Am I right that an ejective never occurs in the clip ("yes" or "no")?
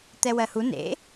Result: yes